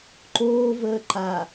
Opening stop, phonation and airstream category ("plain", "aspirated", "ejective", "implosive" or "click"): click